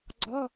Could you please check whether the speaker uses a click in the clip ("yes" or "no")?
yes